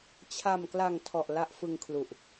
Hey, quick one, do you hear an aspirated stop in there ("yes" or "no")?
yes